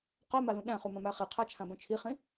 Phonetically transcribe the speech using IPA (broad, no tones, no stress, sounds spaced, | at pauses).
q œ m a l ũ ɗ æ̃ χ u m ã m æ χ i qʰ æ t͡ʃʰ ã b œ̃ t͡ʃʰ i χ ĩ